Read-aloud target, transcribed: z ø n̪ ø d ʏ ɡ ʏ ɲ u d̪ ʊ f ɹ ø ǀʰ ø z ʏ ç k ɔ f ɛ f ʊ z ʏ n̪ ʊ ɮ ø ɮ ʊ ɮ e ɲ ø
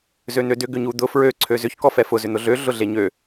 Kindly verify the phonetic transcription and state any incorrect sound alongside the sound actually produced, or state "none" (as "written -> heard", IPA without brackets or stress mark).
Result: none